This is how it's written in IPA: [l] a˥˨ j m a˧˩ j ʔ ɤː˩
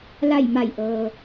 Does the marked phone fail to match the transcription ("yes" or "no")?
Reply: no